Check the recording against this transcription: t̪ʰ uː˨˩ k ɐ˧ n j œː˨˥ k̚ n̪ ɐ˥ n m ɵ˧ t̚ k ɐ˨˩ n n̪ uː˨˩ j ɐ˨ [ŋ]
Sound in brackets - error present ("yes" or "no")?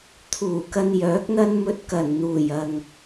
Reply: no